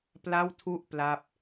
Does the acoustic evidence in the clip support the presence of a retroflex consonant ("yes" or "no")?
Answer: no